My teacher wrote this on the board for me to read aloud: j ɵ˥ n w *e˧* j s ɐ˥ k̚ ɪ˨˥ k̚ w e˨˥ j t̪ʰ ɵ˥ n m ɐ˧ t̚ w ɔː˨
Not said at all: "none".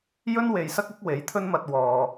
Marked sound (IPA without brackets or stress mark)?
e˨